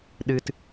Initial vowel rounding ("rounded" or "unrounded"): unrounded